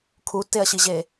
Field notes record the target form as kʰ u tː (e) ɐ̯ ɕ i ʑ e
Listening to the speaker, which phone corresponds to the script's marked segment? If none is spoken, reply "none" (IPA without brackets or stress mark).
e